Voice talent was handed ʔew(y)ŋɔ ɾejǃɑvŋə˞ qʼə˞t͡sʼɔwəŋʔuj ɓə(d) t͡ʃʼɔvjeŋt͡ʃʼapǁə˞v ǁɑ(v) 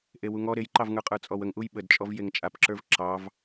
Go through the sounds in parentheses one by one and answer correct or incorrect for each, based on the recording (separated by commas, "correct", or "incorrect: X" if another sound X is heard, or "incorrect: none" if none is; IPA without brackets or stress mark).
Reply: incorrect: u, correct, correct